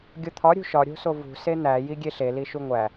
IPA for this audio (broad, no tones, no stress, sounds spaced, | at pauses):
ɡʲ o t̪ʰ ɒ ɾʲ ṳ ʃ ɒ ɾʲ o̤ s o v ṳ s e n̪ æ j i ɡʲ e ɬ e l i ʃ u ŋʷ æ